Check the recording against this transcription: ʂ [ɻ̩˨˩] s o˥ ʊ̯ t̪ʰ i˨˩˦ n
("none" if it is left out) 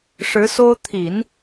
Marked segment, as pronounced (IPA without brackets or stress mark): ɻ̩˧˥